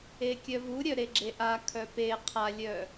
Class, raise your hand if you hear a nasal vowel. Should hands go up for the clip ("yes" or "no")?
no